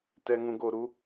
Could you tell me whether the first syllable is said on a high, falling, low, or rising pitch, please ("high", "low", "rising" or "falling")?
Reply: low